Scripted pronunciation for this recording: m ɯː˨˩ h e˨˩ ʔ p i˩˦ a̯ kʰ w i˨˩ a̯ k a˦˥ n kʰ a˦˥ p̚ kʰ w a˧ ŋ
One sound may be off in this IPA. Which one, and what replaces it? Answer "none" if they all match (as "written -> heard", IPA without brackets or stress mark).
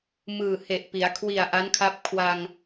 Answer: k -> ʔ